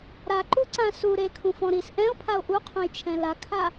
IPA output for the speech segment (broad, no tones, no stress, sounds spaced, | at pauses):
ɾ a ǃ u ǀ ã s u ɾ e kʰ ũ f ɔ̃ ɾ i s ʔ ɛ̃ o̯ pʰ a o̯ ʔ u qʰ õ j t͡ʃʰ ɛ̃ l a kʰ a